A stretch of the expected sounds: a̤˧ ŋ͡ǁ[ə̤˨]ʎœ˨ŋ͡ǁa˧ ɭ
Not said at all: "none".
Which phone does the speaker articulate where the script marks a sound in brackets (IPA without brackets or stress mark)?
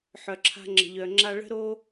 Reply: ə̤˨